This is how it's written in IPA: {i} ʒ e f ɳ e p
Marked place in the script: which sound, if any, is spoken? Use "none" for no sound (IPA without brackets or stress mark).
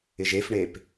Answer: ɪ